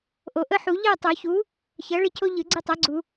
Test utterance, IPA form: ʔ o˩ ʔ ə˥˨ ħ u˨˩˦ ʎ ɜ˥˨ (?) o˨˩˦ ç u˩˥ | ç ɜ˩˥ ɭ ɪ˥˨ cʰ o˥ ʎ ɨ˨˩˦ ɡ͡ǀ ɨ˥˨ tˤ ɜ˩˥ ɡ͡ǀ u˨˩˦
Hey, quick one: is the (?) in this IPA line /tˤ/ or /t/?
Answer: tˤ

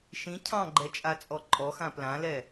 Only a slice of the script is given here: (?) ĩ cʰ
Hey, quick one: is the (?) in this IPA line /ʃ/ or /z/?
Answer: ʃ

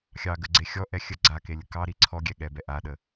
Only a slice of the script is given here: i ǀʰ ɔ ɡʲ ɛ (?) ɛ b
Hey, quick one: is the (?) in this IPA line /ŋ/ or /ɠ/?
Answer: ɠ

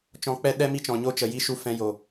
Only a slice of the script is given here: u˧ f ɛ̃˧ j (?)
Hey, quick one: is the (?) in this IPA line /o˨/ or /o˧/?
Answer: o˨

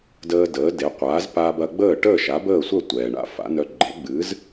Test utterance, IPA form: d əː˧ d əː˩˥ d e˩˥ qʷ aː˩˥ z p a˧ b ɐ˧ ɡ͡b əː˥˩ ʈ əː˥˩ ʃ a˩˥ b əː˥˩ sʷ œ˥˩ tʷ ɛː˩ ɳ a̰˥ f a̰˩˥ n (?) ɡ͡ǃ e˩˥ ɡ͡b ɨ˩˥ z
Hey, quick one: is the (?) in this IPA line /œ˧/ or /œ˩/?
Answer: œ˧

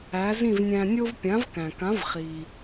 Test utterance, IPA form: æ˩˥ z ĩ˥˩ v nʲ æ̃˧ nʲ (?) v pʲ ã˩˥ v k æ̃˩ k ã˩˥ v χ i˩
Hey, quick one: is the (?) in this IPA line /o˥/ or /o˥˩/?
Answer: o˥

